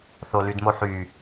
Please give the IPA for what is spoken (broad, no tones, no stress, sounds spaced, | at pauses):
θ o l y d m o ħ y